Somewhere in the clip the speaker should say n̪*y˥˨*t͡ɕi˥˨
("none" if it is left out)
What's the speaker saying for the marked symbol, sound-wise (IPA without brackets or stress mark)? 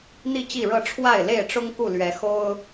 i˥˨